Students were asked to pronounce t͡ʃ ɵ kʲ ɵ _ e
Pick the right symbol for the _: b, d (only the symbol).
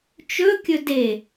d